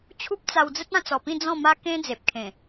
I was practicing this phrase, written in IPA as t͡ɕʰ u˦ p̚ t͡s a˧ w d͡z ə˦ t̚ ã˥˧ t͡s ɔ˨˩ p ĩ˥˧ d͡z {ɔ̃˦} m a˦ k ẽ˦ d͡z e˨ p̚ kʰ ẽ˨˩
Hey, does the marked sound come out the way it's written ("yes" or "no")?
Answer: no